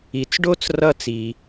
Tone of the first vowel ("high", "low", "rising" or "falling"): low